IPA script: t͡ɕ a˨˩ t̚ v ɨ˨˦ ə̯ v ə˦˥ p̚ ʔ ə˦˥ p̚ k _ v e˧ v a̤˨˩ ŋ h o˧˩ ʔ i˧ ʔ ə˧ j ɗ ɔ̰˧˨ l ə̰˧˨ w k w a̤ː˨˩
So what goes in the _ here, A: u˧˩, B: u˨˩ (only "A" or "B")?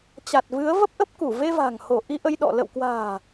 A